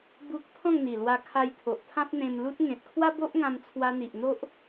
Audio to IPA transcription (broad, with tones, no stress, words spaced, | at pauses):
bu˦k̚ t̪ʰɔ̃˥˧ŋn̪i˨˩ lwa˧kʰa˧jt̪ʰo˨ʔ t̪ʰã˦p̚n̪ẽ˧mlu˦t̚ ŋẽ˨t̚kʰwa˦bo˦ʔ ŋã˧mt͡sʰwa˧n̪i˨ʔ n̪o˦ʔ